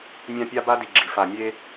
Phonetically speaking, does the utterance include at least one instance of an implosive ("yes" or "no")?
no